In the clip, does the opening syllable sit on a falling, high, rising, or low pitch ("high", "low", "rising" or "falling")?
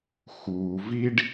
low